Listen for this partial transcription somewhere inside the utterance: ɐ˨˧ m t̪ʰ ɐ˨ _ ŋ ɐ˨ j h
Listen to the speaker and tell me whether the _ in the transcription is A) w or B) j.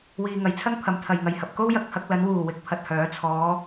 B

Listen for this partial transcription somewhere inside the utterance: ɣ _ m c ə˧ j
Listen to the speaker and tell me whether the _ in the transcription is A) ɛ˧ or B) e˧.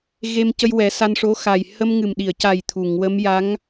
B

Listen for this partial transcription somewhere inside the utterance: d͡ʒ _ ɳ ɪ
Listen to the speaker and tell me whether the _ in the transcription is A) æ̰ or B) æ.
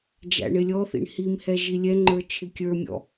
A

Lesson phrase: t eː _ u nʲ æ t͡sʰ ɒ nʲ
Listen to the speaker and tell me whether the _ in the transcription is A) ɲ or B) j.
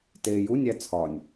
B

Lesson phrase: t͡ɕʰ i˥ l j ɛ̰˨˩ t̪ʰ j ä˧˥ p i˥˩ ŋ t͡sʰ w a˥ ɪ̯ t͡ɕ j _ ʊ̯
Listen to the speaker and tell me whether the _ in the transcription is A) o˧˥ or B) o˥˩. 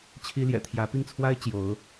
A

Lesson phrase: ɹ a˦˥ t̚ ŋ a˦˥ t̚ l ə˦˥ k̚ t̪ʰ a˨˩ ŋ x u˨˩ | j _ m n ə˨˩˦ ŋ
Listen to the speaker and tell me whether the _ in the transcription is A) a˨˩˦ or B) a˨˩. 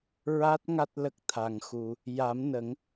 A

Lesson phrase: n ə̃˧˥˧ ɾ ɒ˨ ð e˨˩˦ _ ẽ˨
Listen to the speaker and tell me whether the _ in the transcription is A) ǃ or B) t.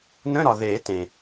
B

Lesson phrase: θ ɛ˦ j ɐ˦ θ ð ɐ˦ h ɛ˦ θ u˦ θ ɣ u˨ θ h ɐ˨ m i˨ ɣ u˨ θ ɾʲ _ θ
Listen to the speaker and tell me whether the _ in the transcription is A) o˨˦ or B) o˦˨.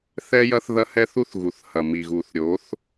A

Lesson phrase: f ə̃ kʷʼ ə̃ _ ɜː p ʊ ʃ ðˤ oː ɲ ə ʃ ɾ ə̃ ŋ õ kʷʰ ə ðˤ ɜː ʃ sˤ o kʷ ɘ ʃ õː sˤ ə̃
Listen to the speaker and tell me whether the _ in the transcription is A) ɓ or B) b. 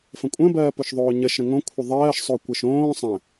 B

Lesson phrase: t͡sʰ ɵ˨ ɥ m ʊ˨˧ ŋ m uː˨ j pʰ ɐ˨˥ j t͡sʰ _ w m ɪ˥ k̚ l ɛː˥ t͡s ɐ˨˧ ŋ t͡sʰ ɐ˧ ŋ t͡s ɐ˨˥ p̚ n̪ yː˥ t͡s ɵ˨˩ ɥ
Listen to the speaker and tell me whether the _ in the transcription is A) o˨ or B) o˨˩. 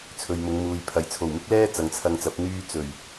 B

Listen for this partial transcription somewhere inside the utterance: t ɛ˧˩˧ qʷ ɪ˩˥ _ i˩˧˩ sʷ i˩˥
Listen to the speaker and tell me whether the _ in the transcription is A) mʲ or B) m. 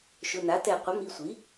B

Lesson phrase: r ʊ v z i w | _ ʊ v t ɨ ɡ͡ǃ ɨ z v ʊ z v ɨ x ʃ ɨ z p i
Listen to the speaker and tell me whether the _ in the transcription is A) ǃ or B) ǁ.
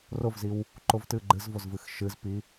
A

